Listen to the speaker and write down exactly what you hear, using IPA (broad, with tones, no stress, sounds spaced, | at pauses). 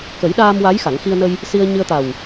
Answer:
k ə˨˩˦ j ɗ aː˧ m w a˧˥ j x a˨˩˦ ŋ x i˧ ə̯ n ə˧ j | s i˧ ə̯ ɲ ɨ˧ ə̯ t̪ a˨˩ w